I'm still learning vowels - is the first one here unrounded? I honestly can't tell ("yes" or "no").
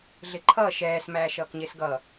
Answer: yes